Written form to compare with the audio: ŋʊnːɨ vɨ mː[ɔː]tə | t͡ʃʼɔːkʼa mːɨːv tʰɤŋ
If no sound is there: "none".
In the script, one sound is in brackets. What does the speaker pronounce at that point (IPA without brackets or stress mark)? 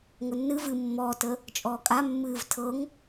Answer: ɔː